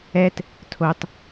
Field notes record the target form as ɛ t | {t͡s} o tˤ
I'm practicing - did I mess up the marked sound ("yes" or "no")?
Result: yes